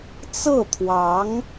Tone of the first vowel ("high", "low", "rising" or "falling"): falling